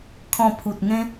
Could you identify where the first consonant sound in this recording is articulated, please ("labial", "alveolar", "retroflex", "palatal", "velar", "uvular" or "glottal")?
velar